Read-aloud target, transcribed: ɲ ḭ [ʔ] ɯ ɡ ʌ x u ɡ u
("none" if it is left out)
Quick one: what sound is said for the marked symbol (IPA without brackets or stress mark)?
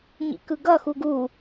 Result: k